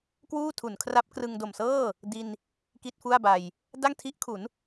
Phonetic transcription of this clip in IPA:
kwuː˥˩tʰu˩˦nkʰra˦˥p̚krɯ˧ŋ do˨˩msɤː˥˩ | di˧n | ki˥˩t̚fu˥˩a̯ba˧j | da˥˩ŋtʰi˦˥ʔkʰu˩˦n

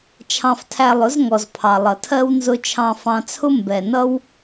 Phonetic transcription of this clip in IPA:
t͡ʃʰɑ̃˧ftʰæ˧lˠʊ˨˦z ŋɔ˨zpʰɑ˨lˠʌ˨tʰɜ˦w nzʊ˧t͡ʃʰɑ̃˧ fɑ̃˧t͡sʰʊ˦ mbɛ˨nʌ˦w

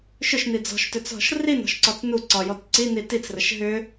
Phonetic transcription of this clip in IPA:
ʃʏʃni d͡zɔ̤ʃtʏt͡sɦɔ̤ʃ rinɔ̤ʃǀɔt͡s nu ǀɒjɔt ǀini tit͡srəʃ ɦʏ

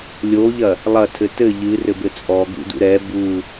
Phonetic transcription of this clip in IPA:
lʲoʎɐ | lˠɐtʰɘ tɘ ʎɨrɘbɘ t͡sʼɔɡṵdṵ ɾɛ bu

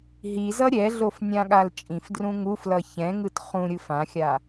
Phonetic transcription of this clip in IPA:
ɦizʌ ɾʲɛɮofnʲãɠal t͡ʃʼĩfdrũ ŋuflʌ çɛ̃ŋɯt χũɾʲɯf ãxʲa

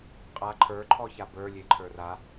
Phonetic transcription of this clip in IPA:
qʼa ǃʰə˞ ǃʰɔçabə˞ lʲeǃʰə˞ra

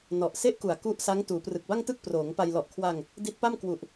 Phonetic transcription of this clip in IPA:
nɔ˨˩ʔ se˥˩ʔku˨˩a̯ ku˦˥ʔsa˦˥ŋ tuː˩˦prɯ˨˩k̚ba˥˩ŋtɯ˥˩k̚ proː˩˦ŋpa˧j lɔ˨˩ʔkʰwa˧ŋ | di˦˥t̚pa˥˩mkwu˨˩ʔ

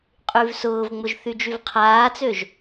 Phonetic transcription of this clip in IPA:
qʼyvsʊːvŋ͡mʊʒ θyd͡ʒyvqʰaːt͡søʒ

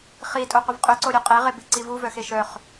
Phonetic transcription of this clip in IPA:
χi tʼoqʷəvqʼʏ ǀoɾʲoqʼe ʁebiǀivu vœxeʃœχ

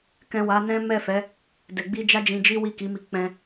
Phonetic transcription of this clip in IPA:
kɛ̃˨ wa˨˦nɛ̃˦ mɛ˦˨fɛ˨˦ | dɛ˨ɡ͡bi˧d͡ʒa˦d͡ʒĩ˧ d͡ʒi˦wi˦˨ki˨˦mi˧ k͡pɛ̃˧

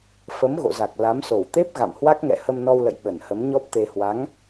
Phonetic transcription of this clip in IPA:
fə˨˦mɣo̰˧˨za˨˩k̚ la˨˦mso˧˩wt̪e˦˥p̚ ɣa̰˧˨mhwa˦˥k̚ŋɛ̰˧˨ hə˧mnɔ˧wlə̰˧˨j ɓə˧˩nhə˨˦mɲɔ˦˥p̚t̪e˧ hwa˨˦ŋ

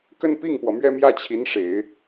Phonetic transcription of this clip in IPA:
kə˥˧n pi˥˩ŋpwɔ˩ mɥɛ˥˧mjä˥˩t͡ɕʰi˧˥nʂe˨˩˦ɪ̯

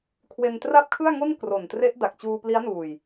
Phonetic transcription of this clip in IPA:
kʰwe˧ntra˥˩p̚kʰɯ˥˩a̯ŋo˥˩n kro˨˩ntre˦˥ʔ da˨˩k̚t͡ɕuː˧pli˦˥a̯nuː˨˩j

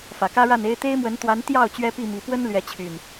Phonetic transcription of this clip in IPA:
fä˨˩kä˦ɻa˥˨ne˦ɪ̯ t̪e˦ɪ̯mwə˨˦nt̪wa˨˦n t̪jɑ˥˨ʊ̯ t͡ɕɥɛ˦pi˥˨mi˨˦ pwə˦nlɥɛ˨˦t͡ɕʰy˨˩n

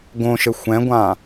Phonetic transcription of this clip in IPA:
ɡõʃɘ xʷɛ̃ɡʷã

